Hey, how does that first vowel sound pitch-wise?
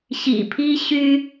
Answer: low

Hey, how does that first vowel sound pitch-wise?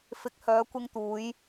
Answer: low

